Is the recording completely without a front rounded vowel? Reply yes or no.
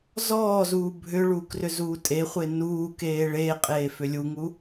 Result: no